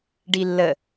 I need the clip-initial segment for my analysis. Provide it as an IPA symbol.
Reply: ɖ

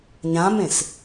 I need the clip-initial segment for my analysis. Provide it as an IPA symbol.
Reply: ɲ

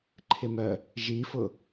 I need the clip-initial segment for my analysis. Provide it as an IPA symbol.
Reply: ǃʰ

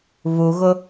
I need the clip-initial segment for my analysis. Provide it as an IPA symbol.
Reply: β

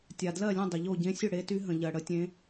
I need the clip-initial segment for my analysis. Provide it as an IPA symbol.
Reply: tʲ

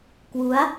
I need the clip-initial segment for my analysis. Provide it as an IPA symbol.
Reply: k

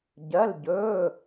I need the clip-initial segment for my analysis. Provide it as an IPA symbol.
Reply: ɟ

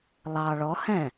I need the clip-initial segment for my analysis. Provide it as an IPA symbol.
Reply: lˠ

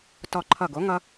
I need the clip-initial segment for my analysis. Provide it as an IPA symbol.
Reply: t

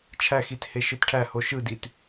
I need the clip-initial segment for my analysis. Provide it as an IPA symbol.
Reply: t͡ʃʰ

